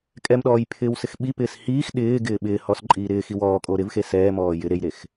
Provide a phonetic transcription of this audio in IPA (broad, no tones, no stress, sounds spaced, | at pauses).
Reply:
kʼ ɛ m ɗ ɔː j pʰ ɪː w s ɪ x ɓ i p ɪː s h iː x ɗ ɪː ɡ ɪː ɓ ɪː h ɔ s ǃʼ iː ɾ ɪː x i w ɔː kʼ o ɾ ɪ v x e s ɛː m ɔː j ɪ ɾ e j ɾ e x